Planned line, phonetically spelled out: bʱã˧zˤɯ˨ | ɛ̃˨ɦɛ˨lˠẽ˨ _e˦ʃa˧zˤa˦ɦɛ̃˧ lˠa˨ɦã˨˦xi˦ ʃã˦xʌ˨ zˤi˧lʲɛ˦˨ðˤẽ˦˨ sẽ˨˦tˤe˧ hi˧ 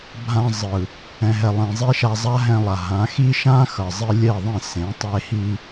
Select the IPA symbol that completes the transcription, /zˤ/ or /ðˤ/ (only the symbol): zˤ